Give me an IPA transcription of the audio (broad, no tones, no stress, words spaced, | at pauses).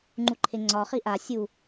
ŋ͡ǃuǃʰeŋ͡ǀɒχi ʔa sʲu